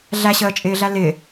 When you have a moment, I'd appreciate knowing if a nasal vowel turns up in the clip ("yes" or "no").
no